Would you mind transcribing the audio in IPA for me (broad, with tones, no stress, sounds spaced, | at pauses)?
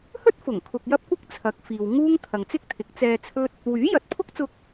h ɵ˥ t̚ f ʊ˨˩ ŋ kʰ ʊ˧ k̚ j ɐ˥ p̚ kʷ ɪ˥ k̚ t͡sʰ ɐ˨˥ k̚ f iː˨ w ŋ uː˥ ŋ t̪ʰ ɐ˨ ŋ t͡s ɪ˥ k̚ t̪ʰ ɪ˨˥ k̚ t͡s ɛː˧ t͡sʰ ɵ˥ t̚ | w yː˨˥ j ɐ˨˥ t̚ pʰ ʊ˥ k̚ t͡s ʊ˧ k̚